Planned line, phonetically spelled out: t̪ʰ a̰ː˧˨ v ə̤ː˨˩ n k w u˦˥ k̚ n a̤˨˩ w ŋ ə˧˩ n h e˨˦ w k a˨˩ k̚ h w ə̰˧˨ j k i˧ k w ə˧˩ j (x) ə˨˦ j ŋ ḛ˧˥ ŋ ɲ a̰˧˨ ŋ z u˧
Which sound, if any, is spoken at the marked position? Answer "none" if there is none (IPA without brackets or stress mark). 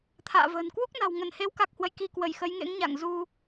x